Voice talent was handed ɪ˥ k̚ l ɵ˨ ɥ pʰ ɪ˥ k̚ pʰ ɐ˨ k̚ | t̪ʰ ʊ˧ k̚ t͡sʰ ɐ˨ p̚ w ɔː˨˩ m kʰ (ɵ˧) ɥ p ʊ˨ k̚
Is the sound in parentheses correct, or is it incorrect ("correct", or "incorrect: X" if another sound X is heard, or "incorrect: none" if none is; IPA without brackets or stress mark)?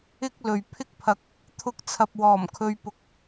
correct